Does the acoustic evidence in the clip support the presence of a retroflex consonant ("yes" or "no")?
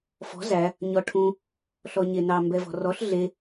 yes